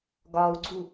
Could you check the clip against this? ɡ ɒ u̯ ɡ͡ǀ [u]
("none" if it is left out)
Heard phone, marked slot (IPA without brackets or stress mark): u